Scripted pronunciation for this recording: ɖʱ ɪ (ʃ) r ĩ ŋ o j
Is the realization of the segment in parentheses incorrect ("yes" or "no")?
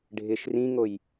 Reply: no